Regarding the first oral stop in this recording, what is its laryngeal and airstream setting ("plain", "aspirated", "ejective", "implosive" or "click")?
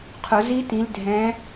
aspirated